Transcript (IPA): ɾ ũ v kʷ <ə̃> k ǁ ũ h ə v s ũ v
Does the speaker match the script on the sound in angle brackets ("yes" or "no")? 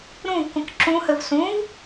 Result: yes